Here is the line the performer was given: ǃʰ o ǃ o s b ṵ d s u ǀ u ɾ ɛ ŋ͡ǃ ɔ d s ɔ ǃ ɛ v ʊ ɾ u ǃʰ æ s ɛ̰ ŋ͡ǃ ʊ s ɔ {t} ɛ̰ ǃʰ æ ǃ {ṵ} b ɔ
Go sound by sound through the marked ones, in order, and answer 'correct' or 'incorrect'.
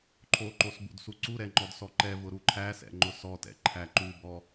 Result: correct, incorrect

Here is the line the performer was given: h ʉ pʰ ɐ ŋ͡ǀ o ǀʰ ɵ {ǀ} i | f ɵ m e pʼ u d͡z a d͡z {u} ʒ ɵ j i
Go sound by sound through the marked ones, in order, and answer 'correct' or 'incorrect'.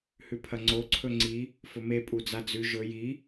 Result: incorrect, incorrect

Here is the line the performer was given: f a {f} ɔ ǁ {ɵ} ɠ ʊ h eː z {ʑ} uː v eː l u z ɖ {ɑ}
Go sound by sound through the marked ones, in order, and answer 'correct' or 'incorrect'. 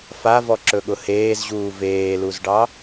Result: incorrect, correct, correct, correct

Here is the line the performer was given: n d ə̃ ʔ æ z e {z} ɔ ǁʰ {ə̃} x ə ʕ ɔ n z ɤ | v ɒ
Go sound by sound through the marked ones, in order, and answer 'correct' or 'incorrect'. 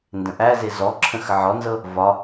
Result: correct, correct

